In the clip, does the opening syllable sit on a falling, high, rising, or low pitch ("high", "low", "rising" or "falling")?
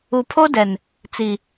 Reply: low